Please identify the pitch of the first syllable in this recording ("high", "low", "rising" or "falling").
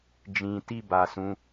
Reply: low